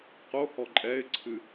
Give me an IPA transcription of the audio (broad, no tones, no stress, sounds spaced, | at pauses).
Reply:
q o h ɔ ǃʼ ɛ ɪ̯ ǀʰ ɨ